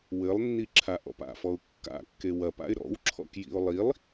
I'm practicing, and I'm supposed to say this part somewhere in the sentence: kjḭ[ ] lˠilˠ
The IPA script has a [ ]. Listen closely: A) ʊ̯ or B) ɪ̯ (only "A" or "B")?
A